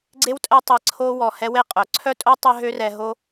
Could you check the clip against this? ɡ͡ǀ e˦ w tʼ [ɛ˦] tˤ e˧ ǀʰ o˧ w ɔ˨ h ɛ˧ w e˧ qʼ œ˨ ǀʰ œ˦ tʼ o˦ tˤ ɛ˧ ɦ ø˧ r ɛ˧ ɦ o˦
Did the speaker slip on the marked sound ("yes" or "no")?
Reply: no